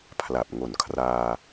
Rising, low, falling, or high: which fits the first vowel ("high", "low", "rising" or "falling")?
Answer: low